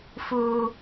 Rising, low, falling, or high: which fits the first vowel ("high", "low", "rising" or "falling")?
high